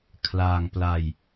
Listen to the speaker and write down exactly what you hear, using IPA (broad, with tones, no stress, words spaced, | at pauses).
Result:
kʰlaː˧ŋpla˧j